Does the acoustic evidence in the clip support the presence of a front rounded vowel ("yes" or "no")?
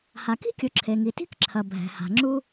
no